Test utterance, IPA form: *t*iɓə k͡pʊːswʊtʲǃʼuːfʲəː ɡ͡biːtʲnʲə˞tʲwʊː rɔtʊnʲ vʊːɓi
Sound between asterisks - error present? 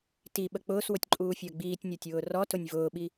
no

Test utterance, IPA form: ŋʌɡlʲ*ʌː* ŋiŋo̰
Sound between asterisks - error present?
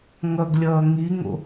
no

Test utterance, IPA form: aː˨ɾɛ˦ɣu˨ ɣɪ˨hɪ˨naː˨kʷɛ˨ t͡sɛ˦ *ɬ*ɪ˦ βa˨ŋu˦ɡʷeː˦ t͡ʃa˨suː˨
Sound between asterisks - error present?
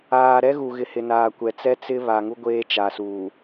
yes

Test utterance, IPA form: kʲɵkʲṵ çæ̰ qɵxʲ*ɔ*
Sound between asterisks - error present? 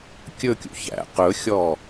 no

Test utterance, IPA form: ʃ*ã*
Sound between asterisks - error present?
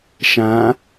no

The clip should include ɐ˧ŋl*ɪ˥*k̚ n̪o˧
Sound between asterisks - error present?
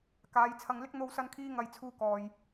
no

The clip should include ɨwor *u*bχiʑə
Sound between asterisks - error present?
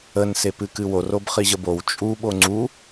yes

